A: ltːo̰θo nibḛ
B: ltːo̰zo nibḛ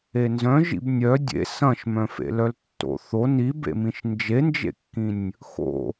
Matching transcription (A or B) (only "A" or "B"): A